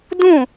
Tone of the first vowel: falling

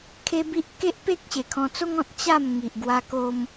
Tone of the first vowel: high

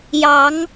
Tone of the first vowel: rising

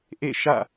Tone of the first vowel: falling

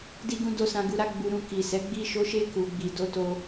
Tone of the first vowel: high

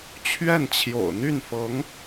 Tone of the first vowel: falling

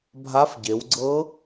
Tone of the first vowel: rising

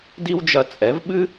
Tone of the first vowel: high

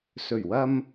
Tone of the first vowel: low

